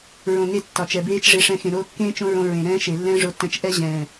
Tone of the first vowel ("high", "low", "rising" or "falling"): low